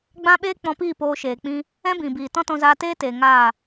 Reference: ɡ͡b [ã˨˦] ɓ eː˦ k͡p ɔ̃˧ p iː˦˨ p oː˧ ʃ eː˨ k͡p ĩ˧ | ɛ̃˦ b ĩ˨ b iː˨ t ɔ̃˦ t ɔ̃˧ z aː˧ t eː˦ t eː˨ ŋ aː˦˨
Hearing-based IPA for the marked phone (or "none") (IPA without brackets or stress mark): ã˦